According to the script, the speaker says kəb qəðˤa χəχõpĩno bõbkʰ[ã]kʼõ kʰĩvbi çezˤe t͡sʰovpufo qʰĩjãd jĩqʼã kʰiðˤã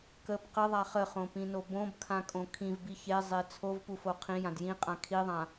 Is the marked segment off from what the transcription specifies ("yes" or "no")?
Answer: no